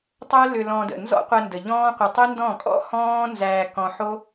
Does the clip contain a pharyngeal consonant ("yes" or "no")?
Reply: yes